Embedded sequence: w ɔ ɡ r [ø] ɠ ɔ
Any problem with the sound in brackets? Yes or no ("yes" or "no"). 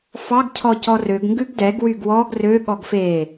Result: no